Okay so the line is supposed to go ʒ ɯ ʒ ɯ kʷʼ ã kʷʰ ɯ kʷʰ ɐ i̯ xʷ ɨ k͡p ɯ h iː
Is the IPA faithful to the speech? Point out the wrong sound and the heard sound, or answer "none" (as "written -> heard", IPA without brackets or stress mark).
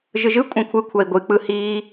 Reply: xʷ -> ɡʷ